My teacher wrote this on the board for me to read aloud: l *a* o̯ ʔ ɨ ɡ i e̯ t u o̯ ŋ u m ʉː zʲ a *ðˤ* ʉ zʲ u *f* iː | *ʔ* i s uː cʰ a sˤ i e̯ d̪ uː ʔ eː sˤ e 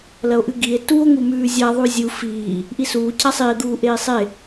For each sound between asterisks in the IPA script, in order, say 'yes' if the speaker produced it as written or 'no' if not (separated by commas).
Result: no, yes, yes, yes